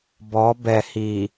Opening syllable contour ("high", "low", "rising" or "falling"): rising